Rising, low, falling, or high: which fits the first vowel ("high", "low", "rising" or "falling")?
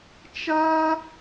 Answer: high